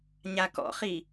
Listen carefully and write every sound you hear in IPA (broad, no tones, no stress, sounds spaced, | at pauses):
ɲ a k ɔ̰ χ i